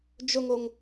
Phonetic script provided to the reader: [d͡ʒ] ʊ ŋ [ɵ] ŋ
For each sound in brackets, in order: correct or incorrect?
correct, incorrect: o

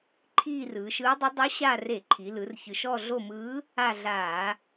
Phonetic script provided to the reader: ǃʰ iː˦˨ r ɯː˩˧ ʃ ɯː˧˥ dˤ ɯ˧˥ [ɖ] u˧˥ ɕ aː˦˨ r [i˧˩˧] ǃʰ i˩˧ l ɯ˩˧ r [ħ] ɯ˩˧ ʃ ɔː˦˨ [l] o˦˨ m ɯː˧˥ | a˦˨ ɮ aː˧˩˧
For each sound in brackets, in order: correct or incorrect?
incorrect: dˤ, incorrect: e˧˩˧, incorrect: ç, incorrect: ɮ

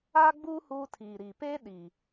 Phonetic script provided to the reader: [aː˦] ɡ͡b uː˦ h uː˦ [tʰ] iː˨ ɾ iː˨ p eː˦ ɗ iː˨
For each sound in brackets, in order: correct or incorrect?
correct, correct

